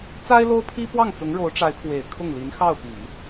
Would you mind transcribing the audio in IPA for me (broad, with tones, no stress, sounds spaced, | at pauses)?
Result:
t͡s a˥ ɪ̯ l o˥ ʊ̯ pʰ i˥ p w ɑ˥˩ ŋ t͡s ʊ˧˥ ŋ ɻ o˧˥ ʊ̯ ʈ͡ʂ a˧˥ ɪ̯ pʰ w e˨˩ ɪ̯ kʰ ʊ˥˩ ŋ l i˧˥ n x ɑ˥˩ ʊ̯ p i˨˩˦